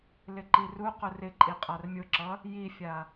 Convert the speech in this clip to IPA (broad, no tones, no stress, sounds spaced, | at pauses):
l ɪ ǃ i r u q ʊ r ɪ ǃʼ i qʼ a r mʲ ʊ ǁ ʌ | j i fʲ a